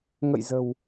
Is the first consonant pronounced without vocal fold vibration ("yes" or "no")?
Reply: no